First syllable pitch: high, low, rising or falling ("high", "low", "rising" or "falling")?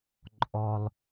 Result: high